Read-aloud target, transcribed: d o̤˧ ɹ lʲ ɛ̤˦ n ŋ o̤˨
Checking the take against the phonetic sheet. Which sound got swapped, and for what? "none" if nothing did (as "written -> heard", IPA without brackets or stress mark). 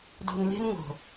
ɹ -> n